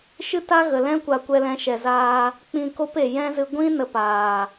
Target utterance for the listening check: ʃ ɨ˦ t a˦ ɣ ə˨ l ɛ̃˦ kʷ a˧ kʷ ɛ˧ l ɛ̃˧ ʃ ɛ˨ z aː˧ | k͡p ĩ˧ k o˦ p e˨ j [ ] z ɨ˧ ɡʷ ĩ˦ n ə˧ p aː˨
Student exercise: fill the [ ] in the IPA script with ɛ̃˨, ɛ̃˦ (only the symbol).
ɛ̃˦